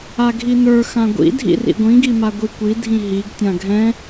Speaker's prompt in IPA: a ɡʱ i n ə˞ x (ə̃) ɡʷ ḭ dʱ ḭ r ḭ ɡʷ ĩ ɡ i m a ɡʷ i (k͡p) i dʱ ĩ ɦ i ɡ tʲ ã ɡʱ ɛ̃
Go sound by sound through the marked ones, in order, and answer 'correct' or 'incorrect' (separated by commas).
incorrect, incorrect